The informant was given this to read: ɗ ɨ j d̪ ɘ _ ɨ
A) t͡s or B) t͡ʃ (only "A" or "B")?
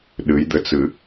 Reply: A